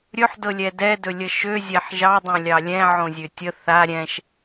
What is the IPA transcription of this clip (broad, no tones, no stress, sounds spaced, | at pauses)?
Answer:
ɾʲ ɵ ħ d ɤ lʲ ɛ d ɛ d ɵ lʲ ə ʃ ø zʲ ɛ ħ ʒ ɑ dˤ õ lʲ ɑ lʲ ɛ̃ ʕ õ zʲ ø tʲ ə θ a ɾʲ ɛ̃ ʃ